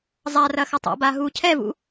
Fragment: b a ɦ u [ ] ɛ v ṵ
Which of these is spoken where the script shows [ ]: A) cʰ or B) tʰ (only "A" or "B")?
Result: A